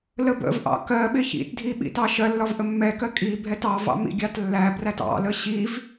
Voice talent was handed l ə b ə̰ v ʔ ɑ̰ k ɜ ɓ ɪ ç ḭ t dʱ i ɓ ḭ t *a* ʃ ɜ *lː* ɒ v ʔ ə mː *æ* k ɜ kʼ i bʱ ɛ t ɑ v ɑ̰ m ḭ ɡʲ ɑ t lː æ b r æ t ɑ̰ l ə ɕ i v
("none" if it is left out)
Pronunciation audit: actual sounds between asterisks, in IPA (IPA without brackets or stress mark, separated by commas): ɑ, lː, ɛ